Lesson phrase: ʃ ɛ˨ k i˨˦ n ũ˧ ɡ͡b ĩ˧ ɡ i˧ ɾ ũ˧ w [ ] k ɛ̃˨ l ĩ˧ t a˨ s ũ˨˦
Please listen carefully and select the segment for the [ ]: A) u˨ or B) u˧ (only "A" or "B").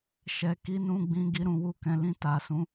B